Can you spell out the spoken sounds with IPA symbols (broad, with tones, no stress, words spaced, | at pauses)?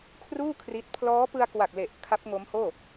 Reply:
kʰruː˥˩ kʰri˦˥t̚ pʰlɔː˦˥pɯ˧a̯kwa˨˩k̚le˨˩ʔ kʰa˦˥p̚ŋo˦˥mhoː˥˩